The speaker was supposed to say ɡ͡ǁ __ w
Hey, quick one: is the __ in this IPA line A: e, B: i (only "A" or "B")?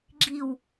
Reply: B